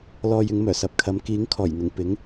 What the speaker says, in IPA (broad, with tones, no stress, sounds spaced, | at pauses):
l ɔː˨ j ɪ˨˧ ŋ m œː˨˩ s ɐ˨ p̚ kʰ ɐ˨˧ m k iː˨˥ ŋ kʰ ɔː˨˩ j n̪ ɪ˨˩ ŋ p ɪ˨˥ ŋ